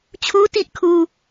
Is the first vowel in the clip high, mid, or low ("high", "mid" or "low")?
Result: high